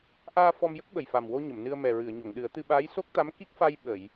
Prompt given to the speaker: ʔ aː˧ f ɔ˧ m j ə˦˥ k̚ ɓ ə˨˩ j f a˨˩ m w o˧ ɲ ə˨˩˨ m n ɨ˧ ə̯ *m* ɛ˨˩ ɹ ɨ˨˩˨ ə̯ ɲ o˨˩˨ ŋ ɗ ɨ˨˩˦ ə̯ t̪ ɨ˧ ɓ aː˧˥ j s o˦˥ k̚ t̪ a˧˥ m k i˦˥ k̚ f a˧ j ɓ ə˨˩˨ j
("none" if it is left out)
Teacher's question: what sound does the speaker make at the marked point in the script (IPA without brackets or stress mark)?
m